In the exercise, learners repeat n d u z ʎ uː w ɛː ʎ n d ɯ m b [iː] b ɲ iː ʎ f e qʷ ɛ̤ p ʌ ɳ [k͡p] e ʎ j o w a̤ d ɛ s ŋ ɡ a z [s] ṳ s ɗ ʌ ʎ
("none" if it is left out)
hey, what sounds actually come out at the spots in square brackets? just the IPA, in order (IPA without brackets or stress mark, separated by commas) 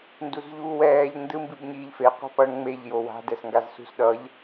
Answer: i, ŋ͡m, s